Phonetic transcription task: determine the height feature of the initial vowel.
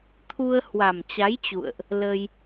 high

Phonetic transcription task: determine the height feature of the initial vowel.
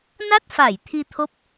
low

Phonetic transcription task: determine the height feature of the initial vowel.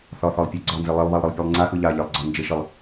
low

